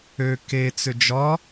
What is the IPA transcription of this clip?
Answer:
ø k e t͡s ʏ d͡ʒ ɒ

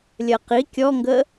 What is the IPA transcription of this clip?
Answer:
lʲ ɜ q i kʲ ɔ ŋ ɡ ə

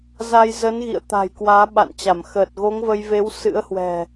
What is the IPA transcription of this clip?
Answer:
z a˧ j z ə˨˦ n ɣ ḭ˧˨ ə̯ t̪ a̤˨˩ j k w aː˨˦ ɓ a̰˧˨ n t͡ɕ a˧˩ m x əː˨˩ t̚ ɣ o˨˦ ŋ v ə˧ j v e˨˦ w s ɨ̰˧˥ ə̯ h w ɛ̤˨˩

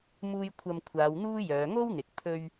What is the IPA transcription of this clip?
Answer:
m uː˧ j kʷʰ ɐ˧ m kʷʰ aː˨˧ w n̪ uː˥ j œː˨˧ ŋ o˥ w n̪ ɪ˨ k̚ pʰ ɵ˧ ɥ

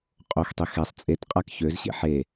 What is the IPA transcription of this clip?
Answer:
qʼ o x tˤ e x ɛ sˤ t͡sʼ e t qʼ a k ç ø z ɕ ḛ ħ e

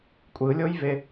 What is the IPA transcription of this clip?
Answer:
kʷʼ ɯ lʲ o j v e

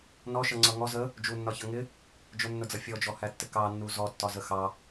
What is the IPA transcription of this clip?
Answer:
n ɔ ʃ ʌ ŋ͡ǀ ʌ ŋ ɔ z ə | d͡ʒ u nː ɒ ç ʌ ŋ ɪ | d͡ʒ ʊ nː ʊ d͡z ʌ fʲ ɔ d͡ʒ ɔ h æ tː ɪ k ɑ nː u z ɔ tː ɒ z ə x ɑ

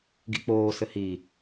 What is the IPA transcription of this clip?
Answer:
ɡ ḭ k͡p oː s ɘ h i

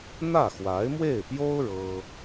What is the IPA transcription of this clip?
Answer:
n̪ ä˥˩ x w a˧˥ ɪ̯ m w e˥˩ ɪ̯ p j o˥ ʊ̯ ɻ ɤ˥

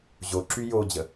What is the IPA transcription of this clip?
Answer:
ʑ o ǁ y j o d͡ʑ ə

